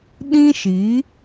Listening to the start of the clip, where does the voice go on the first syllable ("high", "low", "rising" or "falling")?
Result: high